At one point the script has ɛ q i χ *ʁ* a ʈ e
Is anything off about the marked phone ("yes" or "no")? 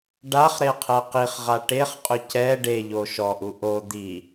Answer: no